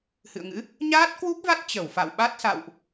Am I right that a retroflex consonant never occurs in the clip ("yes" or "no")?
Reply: yes